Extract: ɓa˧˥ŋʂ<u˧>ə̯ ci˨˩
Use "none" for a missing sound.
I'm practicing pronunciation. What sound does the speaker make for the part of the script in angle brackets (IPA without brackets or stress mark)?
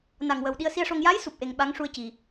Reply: u˧